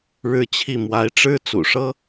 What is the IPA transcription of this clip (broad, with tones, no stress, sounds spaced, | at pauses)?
ɻ ɻ̩˥˧ t͡ɕʰ i˥˩ m w a˧˥ ɪ̯ ʈ͡ʂ ɻ̩˥ t͡s ṵ˨˩ ʂ ɤ˥